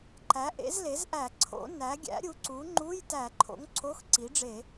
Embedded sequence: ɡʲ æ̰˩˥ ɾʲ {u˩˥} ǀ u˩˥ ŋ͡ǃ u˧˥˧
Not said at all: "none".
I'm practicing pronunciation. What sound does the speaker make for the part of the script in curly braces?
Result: u˩˥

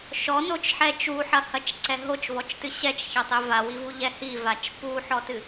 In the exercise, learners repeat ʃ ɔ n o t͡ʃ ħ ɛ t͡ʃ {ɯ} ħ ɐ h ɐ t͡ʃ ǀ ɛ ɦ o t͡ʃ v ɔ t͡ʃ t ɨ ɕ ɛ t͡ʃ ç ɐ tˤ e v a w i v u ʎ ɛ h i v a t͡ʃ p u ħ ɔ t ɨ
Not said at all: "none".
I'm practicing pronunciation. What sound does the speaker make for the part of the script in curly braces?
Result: u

